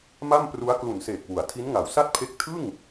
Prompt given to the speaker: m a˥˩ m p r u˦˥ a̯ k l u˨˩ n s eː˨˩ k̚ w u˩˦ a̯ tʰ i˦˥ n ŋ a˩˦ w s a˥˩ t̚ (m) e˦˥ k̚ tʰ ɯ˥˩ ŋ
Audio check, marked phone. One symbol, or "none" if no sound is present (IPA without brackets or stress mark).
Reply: pʰ